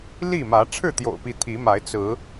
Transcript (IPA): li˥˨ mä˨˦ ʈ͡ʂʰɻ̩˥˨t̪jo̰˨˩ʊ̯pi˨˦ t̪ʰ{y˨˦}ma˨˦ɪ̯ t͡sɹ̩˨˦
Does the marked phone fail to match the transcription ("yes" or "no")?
yes